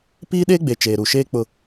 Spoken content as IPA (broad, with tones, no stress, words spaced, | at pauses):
piː˦ɗeː˦ɡ͡be˨ t͡ʃeː˨ɾu˨ʃeː˦ k͡pʊ˦